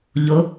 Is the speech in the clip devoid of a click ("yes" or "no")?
yes